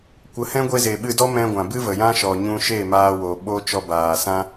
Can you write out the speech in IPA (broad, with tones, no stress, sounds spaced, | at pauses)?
kʷ ə˨˦ h ɛ̃˦ ɡʷ e˧ z e˨ ɓ ɨ˧ d ɔ˦ m ɛ̃˧ ɡʷ ã˨ b ɨ˦ v ə˨ j ã˦ ʃ ɔ˨ ɲ ũ˧ ʃ e˦˨ m aː˧ w o˨ ɓ o˦ t͡ʃ ɔ˧ b aː˨ s ã˦